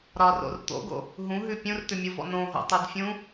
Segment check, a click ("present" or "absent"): absent